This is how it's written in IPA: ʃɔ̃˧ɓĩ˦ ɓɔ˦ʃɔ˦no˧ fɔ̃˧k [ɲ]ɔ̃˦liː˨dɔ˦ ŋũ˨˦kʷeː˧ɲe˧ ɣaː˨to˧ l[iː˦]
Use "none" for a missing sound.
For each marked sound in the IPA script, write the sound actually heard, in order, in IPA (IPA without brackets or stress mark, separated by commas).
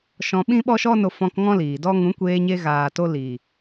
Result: ŋ, iː˨